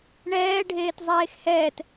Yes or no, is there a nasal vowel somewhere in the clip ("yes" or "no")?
no